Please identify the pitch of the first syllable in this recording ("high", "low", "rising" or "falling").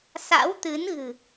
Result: rising